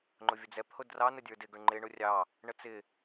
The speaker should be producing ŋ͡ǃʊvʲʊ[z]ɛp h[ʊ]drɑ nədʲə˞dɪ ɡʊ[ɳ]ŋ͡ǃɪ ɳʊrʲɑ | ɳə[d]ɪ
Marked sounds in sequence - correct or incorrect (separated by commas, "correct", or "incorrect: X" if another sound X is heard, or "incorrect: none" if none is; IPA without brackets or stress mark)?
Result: incorrect: d͡z, correct, correct, incorrect: t͡s